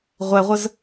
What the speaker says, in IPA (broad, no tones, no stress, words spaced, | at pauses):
ʁʷɛʁʷəz